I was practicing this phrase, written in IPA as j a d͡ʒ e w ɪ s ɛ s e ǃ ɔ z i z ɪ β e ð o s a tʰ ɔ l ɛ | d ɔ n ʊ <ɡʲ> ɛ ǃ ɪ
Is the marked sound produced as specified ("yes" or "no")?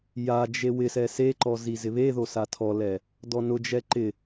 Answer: no